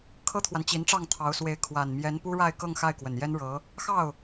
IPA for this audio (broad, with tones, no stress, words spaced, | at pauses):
kʰɤ˥t̪ʰwa˨nt͡ɕi˧˥nʈ͡ʂɑ˥˩ŋ t̪ʰɑ˧˥ʊ̯ swe˧˥ɪ̯ kʰwa˨˩nmjɛ˧˥n pu˥ɻa˥˧ɪ̯kɤ˥˧ŋ xa˥˩ɪ̯kwə˨˩njɛ˥nɻɤ˧˥ | xɑ˥˩ʊ̯